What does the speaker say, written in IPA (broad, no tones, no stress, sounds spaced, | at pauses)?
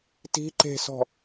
t i̤ ǃ e̤ s ɔ̤